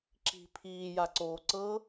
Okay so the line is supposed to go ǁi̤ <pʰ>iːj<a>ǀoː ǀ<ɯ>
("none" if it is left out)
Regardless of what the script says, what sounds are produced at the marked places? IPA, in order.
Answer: pʰ, a, ɤ

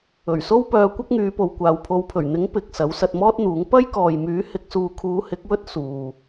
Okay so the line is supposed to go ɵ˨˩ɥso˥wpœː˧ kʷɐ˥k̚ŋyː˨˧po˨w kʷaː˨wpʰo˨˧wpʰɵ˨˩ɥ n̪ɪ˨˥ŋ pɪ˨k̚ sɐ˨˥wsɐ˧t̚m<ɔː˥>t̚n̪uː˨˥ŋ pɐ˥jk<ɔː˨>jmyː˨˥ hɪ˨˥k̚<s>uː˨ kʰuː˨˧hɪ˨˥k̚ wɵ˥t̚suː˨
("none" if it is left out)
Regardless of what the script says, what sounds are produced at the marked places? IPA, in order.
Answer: ɔː˥, ɔː˨, s

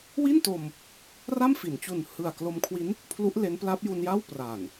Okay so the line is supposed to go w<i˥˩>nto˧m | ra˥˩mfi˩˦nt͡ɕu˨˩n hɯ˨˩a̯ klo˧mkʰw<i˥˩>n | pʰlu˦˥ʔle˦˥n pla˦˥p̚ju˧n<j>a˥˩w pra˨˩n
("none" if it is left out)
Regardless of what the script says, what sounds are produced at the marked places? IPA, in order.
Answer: i˥˩, i˦˥, j

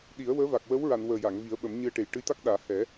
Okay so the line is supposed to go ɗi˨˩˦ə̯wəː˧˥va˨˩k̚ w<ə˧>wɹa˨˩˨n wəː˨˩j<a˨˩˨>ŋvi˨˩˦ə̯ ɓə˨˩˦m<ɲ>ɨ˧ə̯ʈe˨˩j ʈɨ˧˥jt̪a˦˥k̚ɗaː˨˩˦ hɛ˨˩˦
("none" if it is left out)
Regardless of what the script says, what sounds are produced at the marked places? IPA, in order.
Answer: ə˧˥, a˨˩˨, ɲ

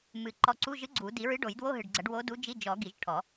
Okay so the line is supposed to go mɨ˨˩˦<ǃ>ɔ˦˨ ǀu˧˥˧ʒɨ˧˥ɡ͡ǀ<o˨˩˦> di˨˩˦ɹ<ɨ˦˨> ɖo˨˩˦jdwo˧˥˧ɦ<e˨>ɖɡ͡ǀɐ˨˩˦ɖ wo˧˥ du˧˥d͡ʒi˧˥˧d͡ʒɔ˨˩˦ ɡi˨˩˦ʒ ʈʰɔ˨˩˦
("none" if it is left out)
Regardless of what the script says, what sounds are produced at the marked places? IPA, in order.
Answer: ǃ, u˨˩˦, ɨ˧˥, ɨ˨

